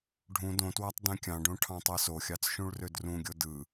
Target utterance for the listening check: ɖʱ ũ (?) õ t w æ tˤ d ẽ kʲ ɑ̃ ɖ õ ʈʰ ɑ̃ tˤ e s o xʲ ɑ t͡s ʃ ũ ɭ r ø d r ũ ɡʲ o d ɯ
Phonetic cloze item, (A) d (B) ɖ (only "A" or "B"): A